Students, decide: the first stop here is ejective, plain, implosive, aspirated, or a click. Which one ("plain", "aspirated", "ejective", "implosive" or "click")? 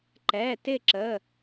click